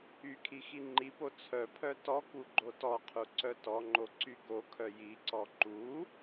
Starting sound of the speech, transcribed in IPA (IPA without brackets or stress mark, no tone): y